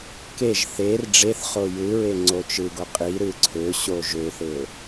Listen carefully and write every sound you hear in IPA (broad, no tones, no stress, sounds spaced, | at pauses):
k e ʒ θ e r ɖ͡ʐ e θ χ o j ɯ ɹ e ŋ͡ǀ o t͡ʃ ɯ ɡ o qʼ i ɾ ɯ ǀʰ ø ɕ o ʒ ø θ e ʊ̯